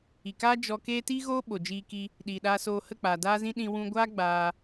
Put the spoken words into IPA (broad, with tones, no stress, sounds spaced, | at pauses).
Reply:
i˨ k aː˦ d͡ʒ ɔ˧ k eː˦ t iː˦ ɣ oː˦ ɓ o˨ d͡ʒ iː˧ k i˧ | ɗ iː˨ ɗ aː˧ s oː˧ h ə˦˨ k͡p aː˨ d aː˦ z ĩ˦ ɗ ĩ˧ w ũ˧ ɡʷ aː˦ ɡ͡b aː˧